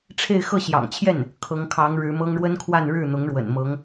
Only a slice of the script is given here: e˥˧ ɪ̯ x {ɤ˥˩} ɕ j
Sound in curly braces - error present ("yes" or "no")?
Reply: no